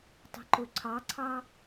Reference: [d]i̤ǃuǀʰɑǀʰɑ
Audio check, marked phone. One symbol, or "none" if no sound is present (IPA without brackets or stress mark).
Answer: tˤ